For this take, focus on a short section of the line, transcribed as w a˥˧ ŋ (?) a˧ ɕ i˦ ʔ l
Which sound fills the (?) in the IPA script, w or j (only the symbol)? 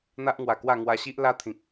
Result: w